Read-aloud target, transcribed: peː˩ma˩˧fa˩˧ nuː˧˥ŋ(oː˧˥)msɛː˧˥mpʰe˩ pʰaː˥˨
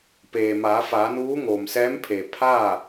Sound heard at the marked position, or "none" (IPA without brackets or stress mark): oː˩